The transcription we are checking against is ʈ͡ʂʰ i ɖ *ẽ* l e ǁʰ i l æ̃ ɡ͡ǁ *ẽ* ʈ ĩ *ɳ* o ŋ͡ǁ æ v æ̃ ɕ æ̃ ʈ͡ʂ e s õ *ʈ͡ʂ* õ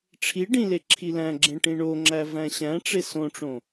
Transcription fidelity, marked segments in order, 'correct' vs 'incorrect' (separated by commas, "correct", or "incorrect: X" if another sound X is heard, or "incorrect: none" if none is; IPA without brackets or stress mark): incorrect: ĩ, correct, correct, correct